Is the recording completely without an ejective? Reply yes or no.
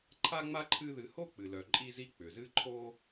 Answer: no